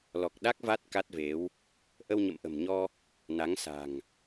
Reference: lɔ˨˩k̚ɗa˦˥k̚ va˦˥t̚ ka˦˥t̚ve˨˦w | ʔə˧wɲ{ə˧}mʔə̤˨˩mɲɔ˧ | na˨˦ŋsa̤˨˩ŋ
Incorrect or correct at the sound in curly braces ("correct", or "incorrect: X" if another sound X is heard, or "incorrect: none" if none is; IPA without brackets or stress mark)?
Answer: incorrect: ə̰˧˨